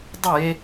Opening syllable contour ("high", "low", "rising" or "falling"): falling